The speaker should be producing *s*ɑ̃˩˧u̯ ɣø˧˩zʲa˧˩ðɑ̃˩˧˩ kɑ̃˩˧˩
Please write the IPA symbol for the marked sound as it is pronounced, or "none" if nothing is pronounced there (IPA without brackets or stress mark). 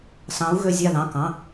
s